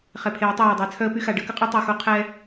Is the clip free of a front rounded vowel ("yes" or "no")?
no